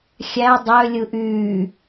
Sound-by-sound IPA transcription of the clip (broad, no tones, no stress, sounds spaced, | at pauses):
xʲ æ dˤ ø lʲ ɯ ʔ yː